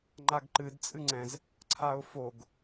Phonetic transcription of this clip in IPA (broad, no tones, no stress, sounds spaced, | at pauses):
ŋ͡ǃ a ɡ ǃ ɨ d t͡sʼ ɨ ŋ͡ǀ ɛ̃ z | ǀʰ a ʊ̯ f o ɡ